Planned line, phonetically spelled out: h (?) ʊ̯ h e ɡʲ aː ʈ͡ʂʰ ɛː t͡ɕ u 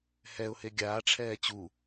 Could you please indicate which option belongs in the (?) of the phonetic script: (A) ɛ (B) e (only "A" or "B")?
A